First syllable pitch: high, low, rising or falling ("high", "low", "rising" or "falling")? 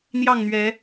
falling